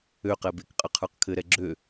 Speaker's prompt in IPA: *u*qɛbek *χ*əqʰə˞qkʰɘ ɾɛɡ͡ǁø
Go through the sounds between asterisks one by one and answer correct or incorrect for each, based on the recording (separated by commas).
incorrect, incorrect